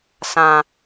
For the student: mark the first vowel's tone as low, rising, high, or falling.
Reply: low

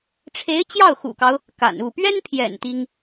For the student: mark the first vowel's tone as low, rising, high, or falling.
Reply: rising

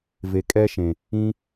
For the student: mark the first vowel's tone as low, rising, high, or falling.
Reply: low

